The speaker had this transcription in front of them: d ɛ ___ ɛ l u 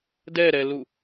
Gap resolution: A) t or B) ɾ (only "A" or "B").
B